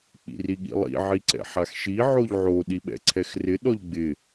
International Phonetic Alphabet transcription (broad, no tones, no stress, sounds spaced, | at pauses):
k͡p ḭ r i ɠ ḭ lˠ ḭ ʕ i ǀ ɛ̰ ħ a x ʃ i ʕ o ʎ ʕ o ɗ i ɓ ɛ̰ ǀʰ ɛ x r ɪ ɗ ɔ ʎ ɡ͡b ɪ